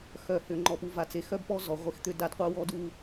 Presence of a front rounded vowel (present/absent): present